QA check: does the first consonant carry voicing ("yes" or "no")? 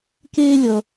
no